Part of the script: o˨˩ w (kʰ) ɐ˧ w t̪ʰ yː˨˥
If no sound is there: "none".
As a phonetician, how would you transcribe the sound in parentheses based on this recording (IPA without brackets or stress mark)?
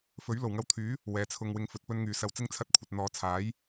ŋ